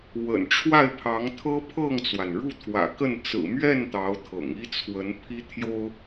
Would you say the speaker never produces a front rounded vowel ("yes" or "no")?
yes